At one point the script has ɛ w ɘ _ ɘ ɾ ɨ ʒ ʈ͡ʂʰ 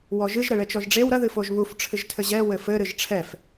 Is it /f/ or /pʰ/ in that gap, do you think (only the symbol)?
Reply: f